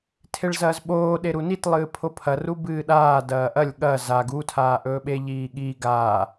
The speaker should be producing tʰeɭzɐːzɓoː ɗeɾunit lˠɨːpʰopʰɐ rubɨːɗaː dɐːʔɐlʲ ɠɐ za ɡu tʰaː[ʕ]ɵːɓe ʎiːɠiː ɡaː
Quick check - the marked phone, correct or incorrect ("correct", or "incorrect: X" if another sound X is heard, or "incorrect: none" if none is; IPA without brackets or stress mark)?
incorrect: ʔ